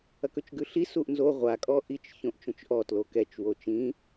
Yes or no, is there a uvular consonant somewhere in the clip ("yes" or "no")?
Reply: yes